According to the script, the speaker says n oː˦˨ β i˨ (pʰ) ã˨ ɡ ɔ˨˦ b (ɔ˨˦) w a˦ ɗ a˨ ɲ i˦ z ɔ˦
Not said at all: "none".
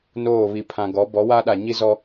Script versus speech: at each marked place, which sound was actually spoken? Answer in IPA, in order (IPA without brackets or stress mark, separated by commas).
pʰ, ɔ˨˦